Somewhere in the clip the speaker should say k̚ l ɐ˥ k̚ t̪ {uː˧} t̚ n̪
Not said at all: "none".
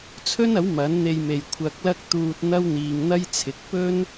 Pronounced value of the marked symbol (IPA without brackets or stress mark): uː˧